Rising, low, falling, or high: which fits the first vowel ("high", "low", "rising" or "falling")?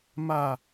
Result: falling